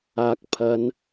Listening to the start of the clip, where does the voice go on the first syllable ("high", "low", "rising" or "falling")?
low